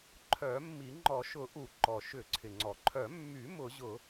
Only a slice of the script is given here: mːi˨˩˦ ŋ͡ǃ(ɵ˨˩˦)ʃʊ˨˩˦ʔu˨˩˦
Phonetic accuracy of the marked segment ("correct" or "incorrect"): incorrect